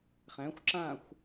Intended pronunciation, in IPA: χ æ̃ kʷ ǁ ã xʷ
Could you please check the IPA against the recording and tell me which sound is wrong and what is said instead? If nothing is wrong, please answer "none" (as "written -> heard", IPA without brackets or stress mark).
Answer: kʷ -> xʷ